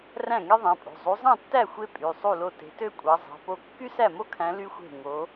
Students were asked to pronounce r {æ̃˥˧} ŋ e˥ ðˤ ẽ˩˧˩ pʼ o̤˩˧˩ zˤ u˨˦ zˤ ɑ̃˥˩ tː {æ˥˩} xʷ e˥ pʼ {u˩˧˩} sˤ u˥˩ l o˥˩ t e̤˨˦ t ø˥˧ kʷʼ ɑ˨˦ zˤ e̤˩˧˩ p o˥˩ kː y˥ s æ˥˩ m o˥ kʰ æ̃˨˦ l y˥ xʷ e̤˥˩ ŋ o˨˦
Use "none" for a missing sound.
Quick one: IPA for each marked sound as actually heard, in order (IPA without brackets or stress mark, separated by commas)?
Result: æ̃˥˩, æ˥˩, y˩˧˩